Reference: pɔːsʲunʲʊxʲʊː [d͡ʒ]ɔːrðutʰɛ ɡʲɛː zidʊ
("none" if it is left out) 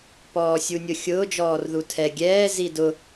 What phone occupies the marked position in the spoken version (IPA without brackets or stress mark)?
d͡ʒ